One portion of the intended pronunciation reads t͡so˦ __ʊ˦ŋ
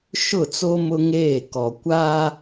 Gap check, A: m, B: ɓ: A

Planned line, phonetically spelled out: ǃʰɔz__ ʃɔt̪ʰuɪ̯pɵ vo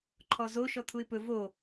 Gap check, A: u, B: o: B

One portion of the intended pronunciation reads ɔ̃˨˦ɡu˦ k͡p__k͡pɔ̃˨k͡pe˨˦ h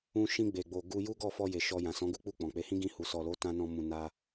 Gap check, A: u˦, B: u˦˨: B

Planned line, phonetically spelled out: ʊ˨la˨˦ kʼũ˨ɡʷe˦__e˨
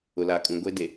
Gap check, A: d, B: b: A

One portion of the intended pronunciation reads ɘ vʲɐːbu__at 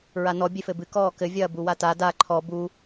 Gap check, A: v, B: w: B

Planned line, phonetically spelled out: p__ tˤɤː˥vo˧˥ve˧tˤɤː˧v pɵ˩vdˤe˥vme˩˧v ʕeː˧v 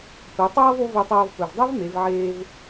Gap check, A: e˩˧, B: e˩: A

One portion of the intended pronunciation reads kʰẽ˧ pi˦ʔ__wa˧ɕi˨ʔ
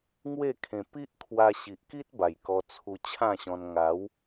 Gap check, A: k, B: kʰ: B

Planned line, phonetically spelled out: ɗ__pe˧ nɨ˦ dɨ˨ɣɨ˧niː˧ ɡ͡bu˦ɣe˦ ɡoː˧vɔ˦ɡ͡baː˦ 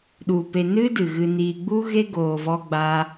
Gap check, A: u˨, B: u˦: A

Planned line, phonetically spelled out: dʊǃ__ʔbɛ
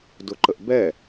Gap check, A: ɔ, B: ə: B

